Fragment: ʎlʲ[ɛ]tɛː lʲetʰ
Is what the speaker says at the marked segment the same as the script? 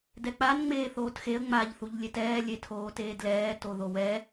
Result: no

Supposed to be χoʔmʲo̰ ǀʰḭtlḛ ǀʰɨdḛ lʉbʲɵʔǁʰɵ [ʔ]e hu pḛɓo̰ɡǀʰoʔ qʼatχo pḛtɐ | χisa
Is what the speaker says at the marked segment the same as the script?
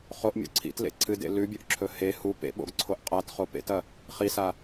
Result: no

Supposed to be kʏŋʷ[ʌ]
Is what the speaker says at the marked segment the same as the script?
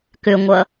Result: yes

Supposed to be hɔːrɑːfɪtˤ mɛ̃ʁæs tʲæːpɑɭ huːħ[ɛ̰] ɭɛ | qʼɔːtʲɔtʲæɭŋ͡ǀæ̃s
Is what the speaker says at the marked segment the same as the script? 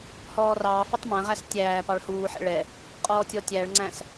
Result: yes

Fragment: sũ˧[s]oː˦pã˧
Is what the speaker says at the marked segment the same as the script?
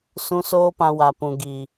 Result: yes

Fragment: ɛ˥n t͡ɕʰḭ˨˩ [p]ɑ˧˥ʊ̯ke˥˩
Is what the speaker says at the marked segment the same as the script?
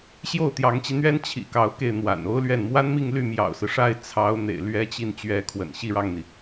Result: no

